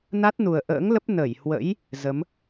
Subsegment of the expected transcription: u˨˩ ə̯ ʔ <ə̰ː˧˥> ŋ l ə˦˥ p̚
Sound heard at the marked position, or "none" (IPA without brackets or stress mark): ə̰ː˧˥